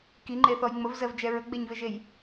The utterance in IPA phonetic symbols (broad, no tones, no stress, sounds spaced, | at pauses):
k i ŋ͡ǃ e θ ɔ j ŋ͡m ə v z ɜ v d͡ʒ ɛ ɹ ə ɡ͡b e ɲ v e ʒ e j